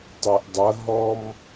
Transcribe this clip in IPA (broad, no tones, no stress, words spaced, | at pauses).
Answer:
tˤʉʔdˤɐ ɦɔm